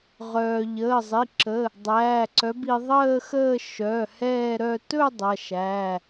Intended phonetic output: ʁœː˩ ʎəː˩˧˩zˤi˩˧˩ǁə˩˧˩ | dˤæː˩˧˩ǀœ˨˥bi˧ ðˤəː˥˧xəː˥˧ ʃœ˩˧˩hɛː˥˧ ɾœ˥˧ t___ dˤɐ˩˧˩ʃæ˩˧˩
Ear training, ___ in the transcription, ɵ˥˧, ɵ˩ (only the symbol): ɵ˥˧